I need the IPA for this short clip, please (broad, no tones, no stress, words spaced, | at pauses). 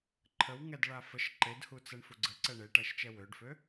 ǃʰəwŋɛdɭa fəʃ ǃedhut͡sɛɳfu ɡ͡ǀəǀɛ ɳeʈæʃt͡ʃɛ wøɖfø